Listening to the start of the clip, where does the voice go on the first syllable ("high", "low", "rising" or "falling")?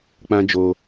high